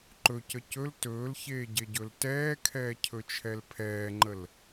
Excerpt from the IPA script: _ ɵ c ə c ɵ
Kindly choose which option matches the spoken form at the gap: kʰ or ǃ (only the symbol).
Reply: ǃ